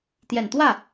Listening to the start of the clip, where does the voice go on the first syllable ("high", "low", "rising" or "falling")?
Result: low